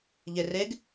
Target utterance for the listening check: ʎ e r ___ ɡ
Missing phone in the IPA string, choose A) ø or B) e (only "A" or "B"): B